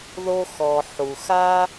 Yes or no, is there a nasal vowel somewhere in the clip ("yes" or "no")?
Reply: no